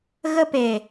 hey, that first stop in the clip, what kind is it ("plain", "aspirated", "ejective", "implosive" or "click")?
plain